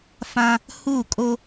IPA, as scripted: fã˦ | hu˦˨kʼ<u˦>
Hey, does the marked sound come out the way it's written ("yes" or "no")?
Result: no